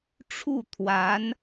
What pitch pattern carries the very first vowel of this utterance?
falling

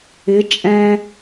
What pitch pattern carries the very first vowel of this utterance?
rising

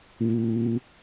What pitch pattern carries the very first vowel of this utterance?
high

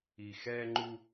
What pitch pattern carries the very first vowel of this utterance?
low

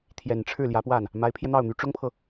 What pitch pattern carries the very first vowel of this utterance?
low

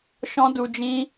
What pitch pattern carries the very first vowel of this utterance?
high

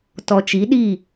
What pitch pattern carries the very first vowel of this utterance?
low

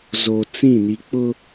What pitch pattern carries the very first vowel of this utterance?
low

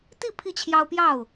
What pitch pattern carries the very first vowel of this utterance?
falling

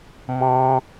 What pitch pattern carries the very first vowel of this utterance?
high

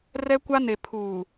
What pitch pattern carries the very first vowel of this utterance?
high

